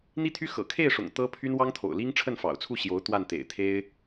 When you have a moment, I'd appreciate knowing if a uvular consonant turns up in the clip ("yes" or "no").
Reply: no